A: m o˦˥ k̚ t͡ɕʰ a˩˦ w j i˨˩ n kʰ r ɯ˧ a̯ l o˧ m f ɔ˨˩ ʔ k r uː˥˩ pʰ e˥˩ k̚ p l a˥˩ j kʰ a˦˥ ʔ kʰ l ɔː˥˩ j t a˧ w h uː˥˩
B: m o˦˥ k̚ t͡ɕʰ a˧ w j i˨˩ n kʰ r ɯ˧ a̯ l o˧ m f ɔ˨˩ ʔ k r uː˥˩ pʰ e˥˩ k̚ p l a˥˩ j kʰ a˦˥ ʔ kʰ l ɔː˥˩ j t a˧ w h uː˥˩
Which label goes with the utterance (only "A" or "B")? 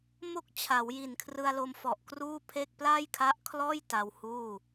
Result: A